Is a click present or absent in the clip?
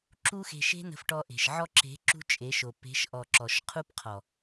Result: present